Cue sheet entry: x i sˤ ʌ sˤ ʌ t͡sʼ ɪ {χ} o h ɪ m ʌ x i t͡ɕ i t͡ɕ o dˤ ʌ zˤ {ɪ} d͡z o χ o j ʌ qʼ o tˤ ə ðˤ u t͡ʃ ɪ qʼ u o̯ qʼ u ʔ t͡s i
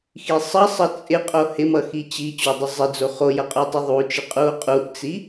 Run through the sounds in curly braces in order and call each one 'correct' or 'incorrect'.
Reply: incorrect, correct

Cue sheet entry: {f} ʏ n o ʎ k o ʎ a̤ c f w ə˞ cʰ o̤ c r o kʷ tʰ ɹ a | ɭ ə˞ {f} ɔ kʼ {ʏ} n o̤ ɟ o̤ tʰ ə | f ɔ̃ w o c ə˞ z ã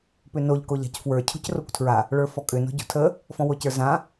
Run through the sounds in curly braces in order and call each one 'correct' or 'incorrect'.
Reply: incorrect, correct, correct

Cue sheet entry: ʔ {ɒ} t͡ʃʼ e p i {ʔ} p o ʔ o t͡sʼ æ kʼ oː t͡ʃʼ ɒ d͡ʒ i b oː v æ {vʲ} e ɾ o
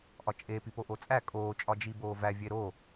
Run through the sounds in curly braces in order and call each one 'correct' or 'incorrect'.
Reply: correct, incorrect, correct

